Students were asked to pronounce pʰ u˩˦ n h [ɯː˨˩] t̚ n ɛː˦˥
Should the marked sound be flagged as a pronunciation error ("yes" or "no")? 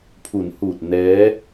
yes